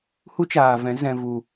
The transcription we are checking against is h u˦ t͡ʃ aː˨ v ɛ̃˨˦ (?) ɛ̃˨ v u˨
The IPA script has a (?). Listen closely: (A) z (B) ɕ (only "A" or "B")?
A